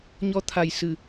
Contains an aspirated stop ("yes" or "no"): yes